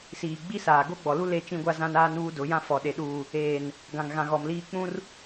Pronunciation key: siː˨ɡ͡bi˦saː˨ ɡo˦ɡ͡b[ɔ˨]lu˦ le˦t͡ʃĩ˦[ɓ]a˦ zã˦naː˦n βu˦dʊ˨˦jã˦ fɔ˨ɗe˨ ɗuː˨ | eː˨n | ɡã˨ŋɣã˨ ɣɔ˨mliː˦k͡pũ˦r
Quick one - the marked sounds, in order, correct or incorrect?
correct, incorrect

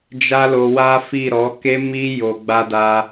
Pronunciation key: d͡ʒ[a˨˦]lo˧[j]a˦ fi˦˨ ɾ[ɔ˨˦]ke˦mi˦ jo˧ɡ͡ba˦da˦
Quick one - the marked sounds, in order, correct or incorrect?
incorrect, incorrect, correct

